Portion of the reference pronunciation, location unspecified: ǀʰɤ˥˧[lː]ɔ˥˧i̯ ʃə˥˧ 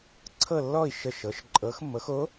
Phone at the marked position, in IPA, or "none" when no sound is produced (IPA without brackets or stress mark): lː